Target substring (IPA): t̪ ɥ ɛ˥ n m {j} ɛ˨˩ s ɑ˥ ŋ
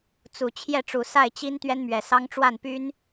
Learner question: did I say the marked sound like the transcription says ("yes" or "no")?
no